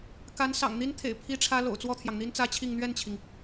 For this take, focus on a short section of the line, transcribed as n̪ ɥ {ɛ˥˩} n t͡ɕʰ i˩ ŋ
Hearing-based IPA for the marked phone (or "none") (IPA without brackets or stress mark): ɛ˥˩